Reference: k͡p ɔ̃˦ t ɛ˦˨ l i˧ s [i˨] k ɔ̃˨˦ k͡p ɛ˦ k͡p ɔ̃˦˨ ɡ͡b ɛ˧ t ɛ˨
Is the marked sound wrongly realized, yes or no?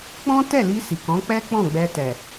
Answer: no